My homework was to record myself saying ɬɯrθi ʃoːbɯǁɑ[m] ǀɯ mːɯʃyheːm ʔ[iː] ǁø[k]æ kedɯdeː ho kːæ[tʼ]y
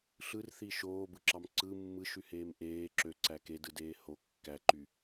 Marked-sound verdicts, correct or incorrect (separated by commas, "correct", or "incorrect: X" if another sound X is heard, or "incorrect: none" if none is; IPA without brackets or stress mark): correct, incorrect: eː, incorrect: ǀ, incorrect: ǃ